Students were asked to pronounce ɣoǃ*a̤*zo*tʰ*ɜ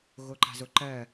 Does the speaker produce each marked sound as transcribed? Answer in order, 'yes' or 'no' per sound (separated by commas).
yes, no